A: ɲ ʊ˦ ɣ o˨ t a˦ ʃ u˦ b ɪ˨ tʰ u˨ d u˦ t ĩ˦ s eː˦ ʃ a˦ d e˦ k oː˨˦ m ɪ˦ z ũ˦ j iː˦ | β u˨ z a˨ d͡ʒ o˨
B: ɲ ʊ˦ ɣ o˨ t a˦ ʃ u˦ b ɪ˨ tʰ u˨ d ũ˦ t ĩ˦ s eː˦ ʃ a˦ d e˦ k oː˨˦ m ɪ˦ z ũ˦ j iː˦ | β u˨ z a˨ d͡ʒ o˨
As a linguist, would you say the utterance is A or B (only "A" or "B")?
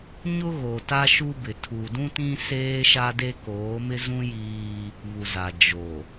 B